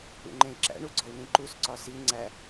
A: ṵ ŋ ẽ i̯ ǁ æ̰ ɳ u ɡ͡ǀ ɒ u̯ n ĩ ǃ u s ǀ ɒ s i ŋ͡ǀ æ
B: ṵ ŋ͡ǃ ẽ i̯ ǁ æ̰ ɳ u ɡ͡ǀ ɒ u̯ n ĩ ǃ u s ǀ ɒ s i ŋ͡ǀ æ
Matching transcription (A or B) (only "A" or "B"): B